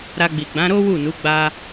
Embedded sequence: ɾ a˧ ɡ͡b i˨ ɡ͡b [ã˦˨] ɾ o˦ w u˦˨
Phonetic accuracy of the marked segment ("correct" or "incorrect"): incorrect